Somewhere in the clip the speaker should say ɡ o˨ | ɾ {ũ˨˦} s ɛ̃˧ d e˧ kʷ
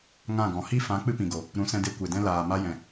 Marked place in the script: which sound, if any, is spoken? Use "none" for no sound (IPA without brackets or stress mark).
ũ˨˦